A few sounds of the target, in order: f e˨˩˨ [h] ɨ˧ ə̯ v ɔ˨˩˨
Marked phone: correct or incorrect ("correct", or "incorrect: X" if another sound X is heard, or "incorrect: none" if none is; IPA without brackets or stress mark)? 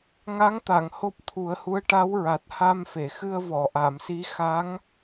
incorrect: x